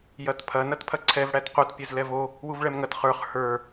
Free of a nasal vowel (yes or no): yes